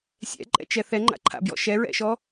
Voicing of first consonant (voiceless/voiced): voiceless